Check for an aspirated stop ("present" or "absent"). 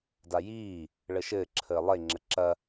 present